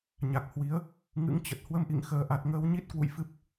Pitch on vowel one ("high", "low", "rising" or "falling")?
low